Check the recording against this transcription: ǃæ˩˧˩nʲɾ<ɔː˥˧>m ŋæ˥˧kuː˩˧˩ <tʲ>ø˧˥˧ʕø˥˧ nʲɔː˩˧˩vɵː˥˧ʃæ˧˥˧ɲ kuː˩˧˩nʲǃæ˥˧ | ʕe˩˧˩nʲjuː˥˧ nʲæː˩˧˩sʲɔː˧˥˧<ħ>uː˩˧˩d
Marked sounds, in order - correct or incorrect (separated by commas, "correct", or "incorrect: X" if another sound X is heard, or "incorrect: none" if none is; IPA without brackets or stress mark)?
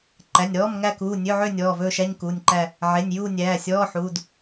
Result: incorrect: ɔː˧˥˧, incorrect: nʲ, correct